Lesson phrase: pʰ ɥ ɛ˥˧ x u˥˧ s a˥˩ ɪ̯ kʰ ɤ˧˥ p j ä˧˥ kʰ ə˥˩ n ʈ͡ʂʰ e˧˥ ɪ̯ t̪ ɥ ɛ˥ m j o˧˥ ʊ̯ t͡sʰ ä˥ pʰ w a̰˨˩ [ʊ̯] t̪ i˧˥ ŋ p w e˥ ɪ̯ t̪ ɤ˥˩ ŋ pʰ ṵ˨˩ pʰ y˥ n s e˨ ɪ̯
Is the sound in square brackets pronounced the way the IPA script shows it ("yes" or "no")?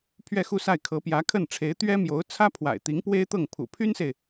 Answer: no